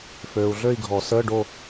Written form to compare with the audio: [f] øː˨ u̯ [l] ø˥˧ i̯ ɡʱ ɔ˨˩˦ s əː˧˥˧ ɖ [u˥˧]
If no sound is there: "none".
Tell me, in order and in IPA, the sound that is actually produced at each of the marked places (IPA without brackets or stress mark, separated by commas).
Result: f, ɮ, o˥˧